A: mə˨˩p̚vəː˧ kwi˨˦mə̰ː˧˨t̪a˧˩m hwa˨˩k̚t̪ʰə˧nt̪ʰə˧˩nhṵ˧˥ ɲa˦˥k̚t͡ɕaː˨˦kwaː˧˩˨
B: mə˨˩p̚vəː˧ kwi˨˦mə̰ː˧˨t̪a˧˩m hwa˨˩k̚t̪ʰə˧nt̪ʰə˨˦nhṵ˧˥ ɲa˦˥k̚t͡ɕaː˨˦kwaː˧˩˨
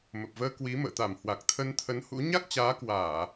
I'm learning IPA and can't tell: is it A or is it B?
B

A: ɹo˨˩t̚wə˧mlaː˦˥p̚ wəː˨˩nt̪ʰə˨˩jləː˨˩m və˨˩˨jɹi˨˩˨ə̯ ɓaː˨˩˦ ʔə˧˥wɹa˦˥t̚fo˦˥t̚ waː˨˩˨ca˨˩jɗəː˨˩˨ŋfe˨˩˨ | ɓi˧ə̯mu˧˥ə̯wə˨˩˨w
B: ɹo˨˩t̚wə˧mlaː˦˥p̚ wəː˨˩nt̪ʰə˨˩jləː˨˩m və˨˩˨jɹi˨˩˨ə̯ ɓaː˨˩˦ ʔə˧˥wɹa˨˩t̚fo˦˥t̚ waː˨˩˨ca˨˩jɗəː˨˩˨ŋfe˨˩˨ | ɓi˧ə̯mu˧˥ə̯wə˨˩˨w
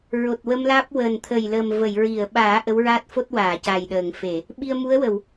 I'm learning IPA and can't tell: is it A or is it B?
A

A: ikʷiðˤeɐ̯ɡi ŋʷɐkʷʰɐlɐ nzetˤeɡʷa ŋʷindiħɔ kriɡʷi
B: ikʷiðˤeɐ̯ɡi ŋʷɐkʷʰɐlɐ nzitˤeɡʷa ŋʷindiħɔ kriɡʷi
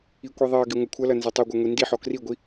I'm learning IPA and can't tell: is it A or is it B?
A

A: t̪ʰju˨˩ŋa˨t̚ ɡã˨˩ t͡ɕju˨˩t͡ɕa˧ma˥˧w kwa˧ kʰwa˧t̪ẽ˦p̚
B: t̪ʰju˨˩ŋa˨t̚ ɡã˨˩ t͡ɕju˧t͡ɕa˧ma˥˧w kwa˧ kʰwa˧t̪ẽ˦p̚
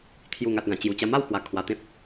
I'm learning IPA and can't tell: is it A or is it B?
A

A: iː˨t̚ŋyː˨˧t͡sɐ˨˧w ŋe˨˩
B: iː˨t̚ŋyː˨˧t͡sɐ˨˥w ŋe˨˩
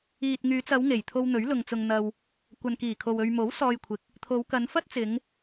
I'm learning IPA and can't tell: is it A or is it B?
A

